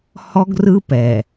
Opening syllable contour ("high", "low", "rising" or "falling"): high